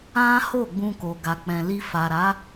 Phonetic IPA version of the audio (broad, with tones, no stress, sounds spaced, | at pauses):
ã˦ h o˦˨ ɡ͡b ũ˧ k o˨ ɡ a˨ k͡p ɛ̃˨ l i˧ f a˨ ɾ a˨˦